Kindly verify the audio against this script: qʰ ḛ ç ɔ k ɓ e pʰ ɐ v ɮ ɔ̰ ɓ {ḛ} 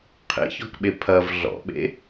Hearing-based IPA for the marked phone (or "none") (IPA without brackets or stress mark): ḛ